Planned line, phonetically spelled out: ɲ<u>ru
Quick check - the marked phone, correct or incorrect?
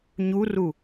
correct